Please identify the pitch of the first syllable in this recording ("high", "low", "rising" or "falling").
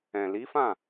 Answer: low